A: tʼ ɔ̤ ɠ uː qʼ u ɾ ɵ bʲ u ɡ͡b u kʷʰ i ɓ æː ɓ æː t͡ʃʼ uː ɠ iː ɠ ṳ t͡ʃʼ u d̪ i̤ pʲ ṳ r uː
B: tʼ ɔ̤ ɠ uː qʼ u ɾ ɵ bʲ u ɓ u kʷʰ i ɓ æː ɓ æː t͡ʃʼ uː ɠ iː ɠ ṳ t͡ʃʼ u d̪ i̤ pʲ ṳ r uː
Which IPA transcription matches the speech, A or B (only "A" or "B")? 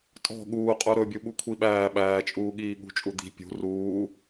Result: B